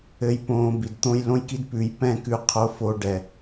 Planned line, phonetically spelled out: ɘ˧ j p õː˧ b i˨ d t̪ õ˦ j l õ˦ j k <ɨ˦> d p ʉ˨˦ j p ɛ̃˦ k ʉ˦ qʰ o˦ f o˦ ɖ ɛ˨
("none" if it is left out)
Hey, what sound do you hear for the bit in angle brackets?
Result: i˦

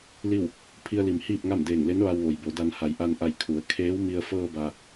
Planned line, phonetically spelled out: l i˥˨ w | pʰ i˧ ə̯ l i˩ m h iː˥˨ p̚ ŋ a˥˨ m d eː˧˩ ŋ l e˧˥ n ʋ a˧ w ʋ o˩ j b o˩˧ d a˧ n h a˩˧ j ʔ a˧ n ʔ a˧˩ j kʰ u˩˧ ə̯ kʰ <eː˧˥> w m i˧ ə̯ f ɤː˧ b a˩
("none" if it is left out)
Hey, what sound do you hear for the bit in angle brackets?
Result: eː˧˥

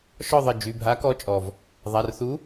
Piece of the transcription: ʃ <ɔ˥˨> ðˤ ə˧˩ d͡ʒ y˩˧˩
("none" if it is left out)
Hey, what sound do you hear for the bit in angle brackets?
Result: ɔ˥˨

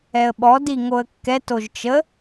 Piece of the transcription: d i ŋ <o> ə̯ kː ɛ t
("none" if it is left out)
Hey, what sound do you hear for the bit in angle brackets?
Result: o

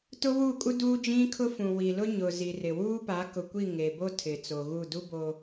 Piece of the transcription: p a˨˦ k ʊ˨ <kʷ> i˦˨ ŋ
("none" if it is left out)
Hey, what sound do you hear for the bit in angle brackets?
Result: kʷ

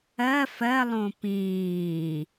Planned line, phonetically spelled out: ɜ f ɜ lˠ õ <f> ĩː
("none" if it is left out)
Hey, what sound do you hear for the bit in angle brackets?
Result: p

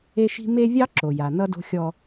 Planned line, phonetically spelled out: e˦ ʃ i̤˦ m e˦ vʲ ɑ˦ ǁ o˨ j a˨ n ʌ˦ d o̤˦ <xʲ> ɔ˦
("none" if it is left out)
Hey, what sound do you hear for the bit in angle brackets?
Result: xʲ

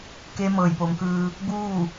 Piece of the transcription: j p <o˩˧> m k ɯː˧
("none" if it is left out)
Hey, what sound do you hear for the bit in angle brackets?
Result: o˩˧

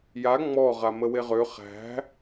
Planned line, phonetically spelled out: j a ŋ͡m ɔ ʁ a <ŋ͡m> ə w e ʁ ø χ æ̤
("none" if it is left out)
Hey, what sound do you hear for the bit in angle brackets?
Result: m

